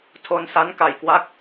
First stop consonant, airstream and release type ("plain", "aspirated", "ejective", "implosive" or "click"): aspirated